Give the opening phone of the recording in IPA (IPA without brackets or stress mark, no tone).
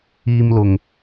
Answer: iː